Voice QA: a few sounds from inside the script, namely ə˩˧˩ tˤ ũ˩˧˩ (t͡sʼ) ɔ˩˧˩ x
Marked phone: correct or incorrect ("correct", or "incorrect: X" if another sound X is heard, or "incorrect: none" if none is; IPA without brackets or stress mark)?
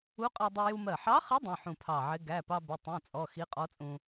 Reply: correct